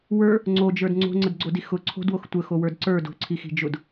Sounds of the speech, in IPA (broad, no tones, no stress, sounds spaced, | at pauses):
w ə˞ | ŋ͡ǀ o d͡ʒ ə˞ d ŋ͡ǀ o̤ ŋ͡ǀ ə d ɡ͡ǀ o d i x ʊ ǀʰ o̤ d w o x tʷ ə x o w ə˞ d ǀ ə˞ d o̤ ǀʰ i x i̤ d͡ʒ ʊ d